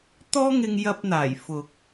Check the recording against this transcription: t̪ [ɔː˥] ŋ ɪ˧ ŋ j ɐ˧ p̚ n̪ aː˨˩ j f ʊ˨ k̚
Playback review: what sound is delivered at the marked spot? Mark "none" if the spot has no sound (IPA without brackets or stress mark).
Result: ɔː˥